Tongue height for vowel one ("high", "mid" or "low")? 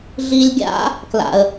high